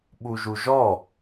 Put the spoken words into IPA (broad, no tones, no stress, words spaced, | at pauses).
ɓuʒuʒɔ